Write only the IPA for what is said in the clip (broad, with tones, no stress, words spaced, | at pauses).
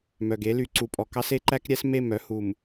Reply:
mœ˨ɡe˦ly˨ ǀu˨pʼɔ˨ kɑ˦se˦ǃæ˦kɾʲæ˦s me˦˨mœ˦hu˨m